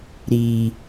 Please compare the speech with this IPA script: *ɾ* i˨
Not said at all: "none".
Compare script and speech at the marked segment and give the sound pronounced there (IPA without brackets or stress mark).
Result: ɾ